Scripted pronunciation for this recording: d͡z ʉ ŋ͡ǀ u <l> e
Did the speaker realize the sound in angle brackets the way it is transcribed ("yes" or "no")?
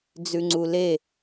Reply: yes